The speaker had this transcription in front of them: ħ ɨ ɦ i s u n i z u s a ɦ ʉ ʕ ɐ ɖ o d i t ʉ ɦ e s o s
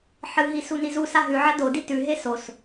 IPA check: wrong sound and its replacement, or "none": ɖ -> d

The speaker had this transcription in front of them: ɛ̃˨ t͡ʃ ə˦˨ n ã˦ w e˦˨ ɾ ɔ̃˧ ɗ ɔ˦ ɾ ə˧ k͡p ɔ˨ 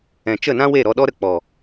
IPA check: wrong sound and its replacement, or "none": ɔ̃˧ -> ɔ˧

